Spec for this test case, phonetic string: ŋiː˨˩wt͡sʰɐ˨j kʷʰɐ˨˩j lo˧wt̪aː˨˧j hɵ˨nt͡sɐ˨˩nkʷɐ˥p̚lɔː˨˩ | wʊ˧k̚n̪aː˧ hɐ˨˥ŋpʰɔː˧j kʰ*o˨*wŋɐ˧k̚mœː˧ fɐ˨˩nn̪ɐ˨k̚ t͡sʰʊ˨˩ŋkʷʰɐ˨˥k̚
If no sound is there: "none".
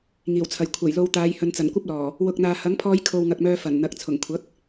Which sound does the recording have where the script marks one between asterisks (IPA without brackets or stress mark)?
o˧